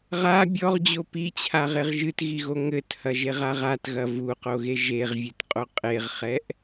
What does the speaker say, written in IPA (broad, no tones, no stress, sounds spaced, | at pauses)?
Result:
ʁ a bʲ ɔ ʁ d͡ʑ o p i t͡ɕʰ a ʁ e ʁ ʒ ɨ t ɣ i ɣ o ŋ ɘ t h ɐ ʒ e ʁ a ʁ a t ɣ ɐ v u q o ɣ e ʒ e ʁ vʲ ɨ t qʼ o qʼ e ʁ χ ɛ ʔ